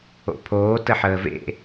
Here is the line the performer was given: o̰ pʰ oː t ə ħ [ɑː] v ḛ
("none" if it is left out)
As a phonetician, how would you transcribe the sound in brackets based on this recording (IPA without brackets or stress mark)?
əː